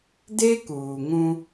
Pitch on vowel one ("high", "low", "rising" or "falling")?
high